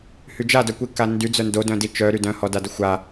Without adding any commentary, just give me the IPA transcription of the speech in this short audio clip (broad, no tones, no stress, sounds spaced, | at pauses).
h y d͡ʒ a d œ kʷ i k a n d y d͡z œ n d o d œ̃ d i t͡ʃ œ ɾ y d œ̃ h ɔ d a d ə xʷ a